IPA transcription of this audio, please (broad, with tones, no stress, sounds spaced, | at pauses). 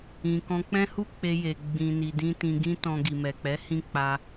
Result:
ĩ˧ k ɔ̃˦ k͡p ɛ̃˦ h u˦ k͡p e˦ j e˧ ɡ͡b ĩ˧ n i˨ d ĩ˧ t ĩ˧ ɡ ĩ˦ t ɔ̃˧ ɡ i˨ m ɛ˨ k͡p ɛ˨˦ h ĩ˦ k͡p a˧